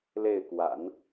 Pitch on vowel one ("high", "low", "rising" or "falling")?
falling